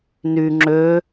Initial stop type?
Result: click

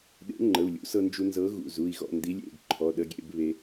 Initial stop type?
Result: implosive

